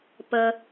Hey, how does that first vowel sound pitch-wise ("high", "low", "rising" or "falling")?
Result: low